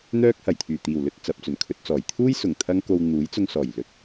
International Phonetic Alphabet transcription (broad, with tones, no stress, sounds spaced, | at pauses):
n̪ œː˥ k̚ h ɐ˨˩ j t̪ʰ yː˨˩ t̪ iː˨˩ w l ɵ˧ t̚ t͡s ɐ˨ p̚ t͡s ɵ˨˩ n kʰ ɵ˧ t̚ t͡s ɔː˨˩ j t̪ʰ uː˥ j s ʊ˨˩ ŋ t̪ʰ ɐ˥ ŋ k o˧ w n̪ uː˨˥ j t͡s ʊ˧ ŋ s ɔː˨˩ j l ɵ˨˥ t̚